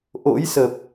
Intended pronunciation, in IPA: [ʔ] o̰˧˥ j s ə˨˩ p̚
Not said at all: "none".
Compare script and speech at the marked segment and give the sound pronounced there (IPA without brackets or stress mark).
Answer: ʔ